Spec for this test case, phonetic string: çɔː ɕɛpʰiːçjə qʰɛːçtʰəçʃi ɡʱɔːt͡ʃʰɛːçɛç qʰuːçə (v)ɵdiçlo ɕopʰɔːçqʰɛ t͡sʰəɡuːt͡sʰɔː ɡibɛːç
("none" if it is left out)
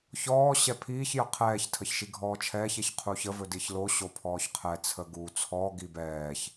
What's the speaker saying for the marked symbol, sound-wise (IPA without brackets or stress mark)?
v